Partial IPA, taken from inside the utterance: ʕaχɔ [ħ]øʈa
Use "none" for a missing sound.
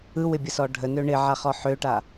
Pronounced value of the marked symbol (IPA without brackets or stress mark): ħ